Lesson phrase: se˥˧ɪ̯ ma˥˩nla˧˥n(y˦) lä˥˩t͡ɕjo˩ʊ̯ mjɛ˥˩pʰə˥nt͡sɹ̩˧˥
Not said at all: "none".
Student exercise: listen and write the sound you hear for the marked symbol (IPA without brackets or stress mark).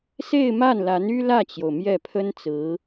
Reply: y˥